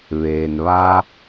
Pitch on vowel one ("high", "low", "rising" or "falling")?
low